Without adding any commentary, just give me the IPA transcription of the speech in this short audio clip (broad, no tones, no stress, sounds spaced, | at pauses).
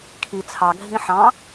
kʰ i t͡sʰ ɑ ɡʱ ĩ ħ ɑ̃